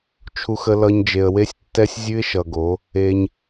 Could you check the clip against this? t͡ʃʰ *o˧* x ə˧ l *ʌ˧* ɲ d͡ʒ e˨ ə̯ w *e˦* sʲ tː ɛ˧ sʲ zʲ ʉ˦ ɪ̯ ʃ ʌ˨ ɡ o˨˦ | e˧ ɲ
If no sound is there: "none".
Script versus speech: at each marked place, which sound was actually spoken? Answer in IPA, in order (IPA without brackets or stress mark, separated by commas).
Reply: u˧, ʌ˧, e˧